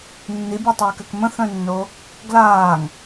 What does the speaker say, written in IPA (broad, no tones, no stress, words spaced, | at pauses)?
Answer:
nːibʲɔtˤøːkøk mə̃θœ̃nːo | ɡlaːŋ